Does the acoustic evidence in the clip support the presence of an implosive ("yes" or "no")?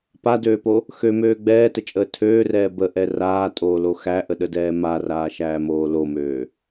yes